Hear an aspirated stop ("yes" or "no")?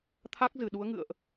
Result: yes